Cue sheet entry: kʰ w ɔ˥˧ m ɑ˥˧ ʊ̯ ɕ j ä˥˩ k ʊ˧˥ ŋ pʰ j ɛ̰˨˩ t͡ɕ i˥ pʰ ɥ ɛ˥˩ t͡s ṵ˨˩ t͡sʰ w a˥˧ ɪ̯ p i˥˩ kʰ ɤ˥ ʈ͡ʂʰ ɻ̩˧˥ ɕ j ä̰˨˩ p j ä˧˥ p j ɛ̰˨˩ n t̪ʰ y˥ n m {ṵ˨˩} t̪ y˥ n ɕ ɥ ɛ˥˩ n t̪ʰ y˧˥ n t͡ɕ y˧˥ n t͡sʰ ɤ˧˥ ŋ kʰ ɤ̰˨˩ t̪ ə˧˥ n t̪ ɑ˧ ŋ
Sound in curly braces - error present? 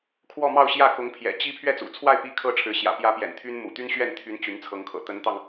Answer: no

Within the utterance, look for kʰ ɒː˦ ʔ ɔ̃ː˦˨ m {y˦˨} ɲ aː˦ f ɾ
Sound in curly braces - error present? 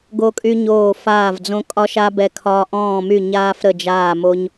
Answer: no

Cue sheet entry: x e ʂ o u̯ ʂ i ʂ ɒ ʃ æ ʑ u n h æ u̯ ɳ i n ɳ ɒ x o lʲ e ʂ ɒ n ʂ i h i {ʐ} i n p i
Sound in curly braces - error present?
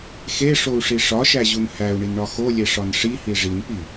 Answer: no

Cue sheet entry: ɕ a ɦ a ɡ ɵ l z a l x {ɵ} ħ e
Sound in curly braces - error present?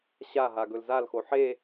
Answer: yes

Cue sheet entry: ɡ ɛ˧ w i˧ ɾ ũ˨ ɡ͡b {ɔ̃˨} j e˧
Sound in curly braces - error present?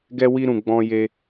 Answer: yes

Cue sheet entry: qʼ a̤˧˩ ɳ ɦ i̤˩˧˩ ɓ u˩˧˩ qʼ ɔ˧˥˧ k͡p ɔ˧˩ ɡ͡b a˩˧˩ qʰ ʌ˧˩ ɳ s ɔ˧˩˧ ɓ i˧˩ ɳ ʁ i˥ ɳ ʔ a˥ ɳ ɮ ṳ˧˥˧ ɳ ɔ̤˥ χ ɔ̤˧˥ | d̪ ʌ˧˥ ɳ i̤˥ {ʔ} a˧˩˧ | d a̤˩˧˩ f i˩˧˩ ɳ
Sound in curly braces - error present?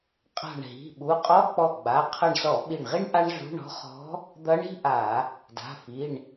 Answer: no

